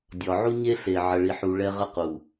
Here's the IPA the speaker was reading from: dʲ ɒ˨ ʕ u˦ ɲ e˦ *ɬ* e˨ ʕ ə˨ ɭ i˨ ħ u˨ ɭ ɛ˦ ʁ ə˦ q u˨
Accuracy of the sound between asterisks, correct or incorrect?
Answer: correct